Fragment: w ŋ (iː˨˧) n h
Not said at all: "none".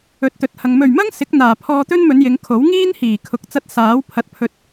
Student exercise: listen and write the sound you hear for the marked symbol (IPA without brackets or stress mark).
iː˥